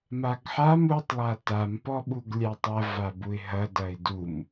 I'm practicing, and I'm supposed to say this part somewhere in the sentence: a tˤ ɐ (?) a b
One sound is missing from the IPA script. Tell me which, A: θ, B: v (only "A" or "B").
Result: B